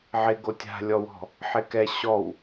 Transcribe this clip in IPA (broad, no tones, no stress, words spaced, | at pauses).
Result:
ʕɪɡo tʲa̤lʲɔwɔ̤ | ħɪkɛ ɕɔw